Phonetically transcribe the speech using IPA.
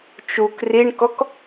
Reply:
t͡ʃ u k r i ɳ k ɔ k

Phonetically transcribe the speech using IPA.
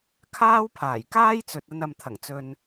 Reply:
kʰ aː˥ w pʰ aː˨˩ j k aː˥ j t͡s ɵ˨ t̚ ɐ˧ n ɐ˨ m t̪ʰ ɐ˨˩ ŋ t͡s ɵ˨ n

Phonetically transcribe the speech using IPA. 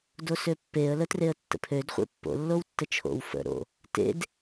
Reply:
d o s ø pː e ə̯ l ə t r e ə̯ tː ə̰ pʰ ø d χʷ ḛ pː o̰ lː o w tː ə t͡ʃʰ o̰ w f ə̰ ɾ o̰ | t ḛ d

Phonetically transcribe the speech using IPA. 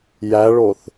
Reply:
j æ ɭ o θ

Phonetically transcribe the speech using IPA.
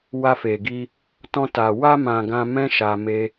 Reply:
w a˧ f e˨ ɡ i˧ | t ɔ̃˧ t a˨ w a˧ m ã˨ ɡ ã˧ m ɛ̃˦ ʃ a˧ m e˦

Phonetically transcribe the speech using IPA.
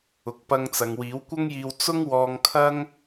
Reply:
ʊ˨ k̚ p ɐ˧ ŋ t͡s ɐ˨ ŋ w iː˨˥ w kʷ ɐ˥ ŋ j iː˧ w t͡s ʊ˥ ŋ w ɔː˧ ŋ kʰ ɐ˥ ŋ

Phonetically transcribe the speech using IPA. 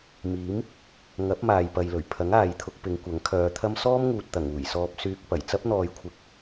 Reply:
m iː˨˥ m | ŋ ɐ˨˥ p̚ m aː˨ j p ɐ˨ j l ɵ˨˩ ɥ pʰ ɐ˨˥ ŋ aː˨ j t̪ʰ ʊ˧ k̚ p ɪ˨˧ ŋ kʷ ɐ˨˥ ŋ kʰ œː˨˧ t̪ʰ ɐ˥ m s ɔː˥ m ŋ uː˨ t̚ t̪ ɐ˨˩ ŋ uː˨˩ j s ɔː˧ p̚ s yː˧ k̚ p ɐ˨˩ j t͡s ɐ˥ p̚ n̪ ɔː˨ j kʷʰ ɪ˨ k̚

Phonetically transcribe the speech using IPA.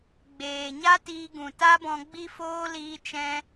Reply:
ɡ͡b eː˨ ɲ a˦ t iː˧ ɡ ũ˨ t a˦ b ɔ̃˧ ɡ͡b i˦ f oː˦ l iː˦ t͡ʃ ɛ̃˦

